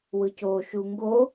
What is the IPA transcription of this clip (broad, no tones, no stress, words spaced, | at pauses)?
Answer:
wɯco ʃuŋɡo